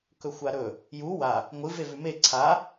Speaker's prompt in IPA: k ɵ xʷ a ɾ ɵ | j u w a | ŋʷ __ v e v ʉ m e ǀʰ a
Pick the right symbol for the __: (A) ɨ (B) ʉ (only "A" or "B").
A